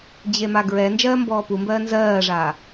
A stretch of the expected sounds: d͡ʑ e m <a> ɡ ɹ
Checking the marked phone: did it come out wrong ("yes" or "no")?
no